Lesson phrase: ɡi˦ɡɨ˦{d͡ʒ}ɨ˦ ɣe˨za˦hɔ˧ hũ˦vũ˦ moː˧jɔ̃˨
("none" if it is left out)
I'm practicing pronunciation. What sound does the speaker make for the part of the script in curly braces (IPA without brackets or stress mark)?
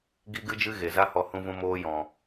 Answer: d͡ʒ